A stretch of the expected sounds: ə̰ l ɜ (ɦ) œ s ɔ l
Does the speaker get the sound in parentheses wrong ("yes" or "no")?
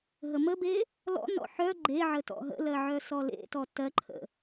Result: yes